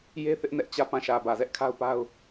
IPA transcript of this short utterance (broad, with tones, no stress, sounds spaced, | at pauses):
j e˦ θ ɪ˦ ʔ n ɛ˦ ʔ t͡ɕ ä˦˨ p ã˦˨ ʃ ä˨ b ä˨ z ɛ˦ ʔ kʰ a˦ ʊ̯ p a˦ ʊ̯